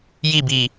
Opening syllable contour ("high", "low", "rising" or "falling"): falling